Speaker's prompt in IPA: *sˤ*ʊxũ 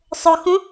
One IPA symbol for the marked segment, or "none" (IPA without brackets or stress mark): sˤ